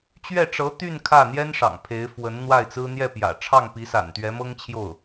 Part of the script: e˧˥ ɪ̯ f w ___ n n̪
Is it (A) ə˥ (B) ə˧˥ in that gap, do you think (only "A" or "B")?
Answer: B